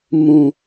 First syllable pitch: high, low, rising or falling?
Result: low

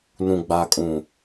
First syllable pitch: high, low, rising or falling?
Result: low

